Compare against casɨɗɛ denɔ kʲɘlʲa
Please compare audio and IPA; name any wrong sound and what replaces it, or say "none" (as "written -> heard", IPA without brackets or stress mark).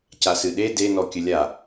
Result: ɛ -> e